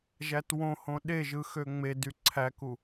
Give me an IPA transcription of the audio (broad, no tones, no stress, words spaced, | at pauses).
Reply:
ʒætwõhõ ɗeʒɯ xøŋ͡medy ǀʰæku